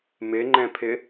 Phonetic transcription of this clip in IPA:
m ɪ ŋ͡ǃ ɛ̃ pʰ ɪ

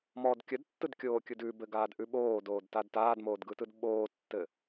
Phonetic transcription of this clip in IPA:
m ɔ d kʲ ə d tː ɯ d kʲ oː kʲ ɯ d ʉ b ɘ ɡ aː d ʔ ʉ ɓ oː d oː d t a d t aː d m oː d ɡ ɯ t ɯ d ɓ oː tː ɘ

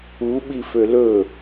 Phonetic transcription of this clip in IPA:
u ɓ i f ø l ɵ

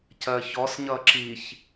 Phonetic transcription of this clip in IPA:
c ɜ ç ɔ s ɲ ʌ ǁ i ç

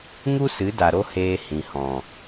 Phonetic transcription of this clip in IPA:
ŋ u˦ s ɨ˨˦ d a˨ ɾ o˦ h eː˧ h ĩ˨ h ɔ̃˨

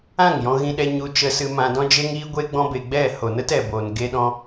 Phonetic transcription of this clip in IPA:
ã˦˨ ŋ j ɔ̃˧ ɣ ĩ˧ ɗ ɛ˧ ɲ u˧ t͡ʃ ə˧ s ɨ˧ m ã˧ d ɔ̃˦ d͡ʒ e˦ ŋ iː˦ ɡʷ e˦ ɡ͡b ɔ̃˦ b e˧ ɡ͡b ɛ˦˨ h o˨ n ə˦ t ɛ˨ b oː˨ n ɡ e˧ ɗ ɔ̃˧

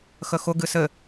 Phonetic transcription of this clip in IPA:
x ə x ʊ ɡ ɨ s ɘ

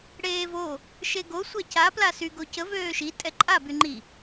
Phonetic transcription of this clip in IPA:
ɽ eː v o | ʃ e ɡ o sʷ a c a p l a s y ɡ o c ə v øː ʃ i tʼ ɛ ǃʼ a b y ŋ͡ǃ i

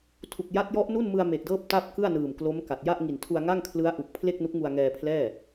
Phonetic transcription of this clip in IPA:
tʰ u˨˩ k̚ j a˦˥ t̚ j ɔ˦˥ ʔ n u˥˩ n m ɯ˧ a̯ m e˨˩ k̚ d ɤː˥˩ p̚ t a˥˩ p̚ k ɯ˥˩ a̯ n ɯː˨˩ m k l o˦˥ m k a˨˩ t̚ j a˥˩ ʔ ŋ i˨˩ n tʰ u˧ a̯ ŋ a˥˩ ŋ kʰ l ɯ˦˥ a̯ ʔ u˨˩ k̚ pʰ l e˥˩ k̚ n u˦˥ k̚ ŋ u˧ a̯ ŋ ɛː˧ pʰ l ɛː˥˩

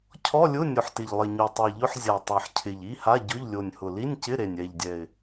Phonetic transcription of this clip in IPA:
cʰ ɔ˧˥˧ lʲ ʊ˧˥˧ nʲ ʊ˨˩ ħ t ɪ˨˩ ʎ lˠ ɪ˨˩ ɲ u˨˩ tˤ i˨˩ ʎ ʊ˧˥˧ ħ zʲ a˨˩ tˤ a˨˩ ħ cʰ ɪ˨˩ ʎ i˧˥˧ h a˧˥˧ ɟ ʊ˧˥˧ ʎ lʲ o˨˩ nʲ h ʊ˨˩ l i˧˥˧ nʲ c ɪ˧˥˧ ɾ e˨˩ nʲ ɛ˨˩ ʎ dʲ ɛ˨˩ ɪ̯

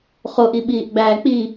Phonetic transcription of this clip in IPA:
χ o ʔ i ɓ iː ʔ ɡ͡b æː k͡p i

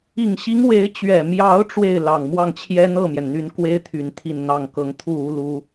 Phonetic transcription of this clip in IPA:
i˨˩ ŋ ɕ i˧˥ ŋ w e˧˥ ɪ̯ t͡ɕ ɥ ɛ˨˩ m j ɑ˧˥ ʊ̯ ʈ͡ʂ w e˥˩ ɪ̯ l ɑ˨˩ ŋ m w ɑ˥˩ ŋ t͡ɕʰ j ɛ˥ n̪ ɤ˥˩ m j ɛ˩ n n̪ y˧˥ n k w e˥ ɪ̯ t̪ʰ y˨˩ n t̪ʰ i˥˧ n n̪ ɑ˥˩ ŋ k ɤ˧˥ ŋ t̪ʰ u˥˩ u˥ l u˥

